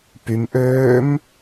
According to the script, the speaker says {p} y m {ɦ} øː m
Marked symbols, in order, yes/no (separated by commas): yes, no